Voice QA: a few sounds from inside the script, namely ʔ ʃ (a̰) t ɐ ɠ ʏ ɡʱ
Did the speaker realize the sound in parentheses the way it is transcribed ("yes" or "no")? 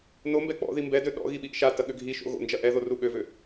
no